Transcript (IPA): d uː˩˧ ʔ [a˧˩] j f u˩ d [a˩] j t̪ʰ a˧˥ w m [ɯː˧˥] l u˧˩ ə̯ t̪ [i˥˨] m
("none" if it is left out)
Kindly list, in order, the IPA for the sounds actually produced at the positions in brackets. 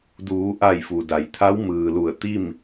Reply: a˧˩, a˩, ɯː˩, i˥˨

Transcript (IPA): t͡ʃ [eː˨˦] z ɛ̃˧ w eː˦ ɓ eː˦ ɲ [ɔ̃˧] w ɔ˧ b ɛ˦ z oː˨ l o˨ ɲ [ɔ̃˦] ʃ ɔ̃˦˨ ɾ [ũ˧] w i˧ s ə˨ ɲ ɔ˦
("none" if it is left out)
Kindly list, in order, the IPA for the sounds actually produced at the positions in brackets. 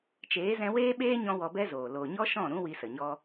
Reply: eː˨˦, ɔ̃˦, ɔ˦, ũ˦

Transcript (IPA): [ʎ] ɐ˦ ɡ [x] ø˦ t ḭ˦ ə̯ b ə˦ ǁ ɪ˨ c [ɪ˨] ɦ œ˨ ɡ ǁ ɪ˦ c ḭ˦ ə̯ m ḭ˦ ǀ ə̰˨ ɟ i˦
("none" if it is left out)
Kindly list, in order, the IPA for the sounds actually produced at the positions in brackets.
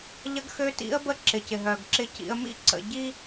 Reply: ʎ, x, ɪ˨

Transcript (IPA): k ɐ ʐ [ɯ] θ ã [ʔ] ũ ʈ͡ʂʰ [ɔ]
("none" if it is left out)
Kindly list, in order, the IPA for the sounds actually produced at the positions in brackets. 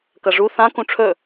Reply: u, k, ɵ

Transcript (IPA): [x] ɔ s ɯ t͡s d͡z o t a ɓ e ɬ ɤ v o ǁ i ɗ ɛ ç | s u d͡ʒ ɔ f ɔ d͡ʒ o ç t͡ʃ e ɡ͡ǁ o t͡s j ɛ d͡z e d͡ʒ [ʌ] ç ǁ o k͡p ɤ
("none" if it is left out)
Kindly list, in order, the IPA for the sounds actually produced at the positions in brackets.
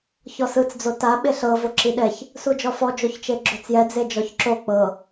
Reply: ç, ɔ

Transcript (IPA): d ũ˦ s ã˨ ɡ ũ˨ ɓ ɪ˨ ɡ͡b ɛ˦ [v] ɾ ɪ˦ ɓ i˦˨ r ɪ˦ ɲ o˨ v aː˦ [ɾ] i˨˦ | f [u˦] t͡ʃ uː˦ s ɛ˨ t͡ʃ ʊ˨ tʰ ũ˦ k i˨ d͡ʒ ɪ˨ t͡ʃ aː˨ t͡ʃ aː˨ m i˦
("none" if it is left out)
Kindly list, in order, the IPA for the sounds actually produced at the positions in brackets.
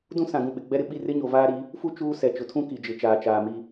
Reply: none, ɾ, u˦

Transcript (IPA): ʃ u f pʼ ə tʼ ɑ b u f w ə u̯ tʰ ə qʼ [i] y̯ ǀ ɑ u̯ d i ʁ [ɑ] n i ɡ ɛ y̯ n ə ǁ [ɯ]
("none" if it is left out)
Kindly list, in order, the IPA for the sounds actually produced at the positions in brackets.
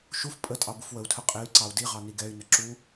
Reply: e, ɑ, u

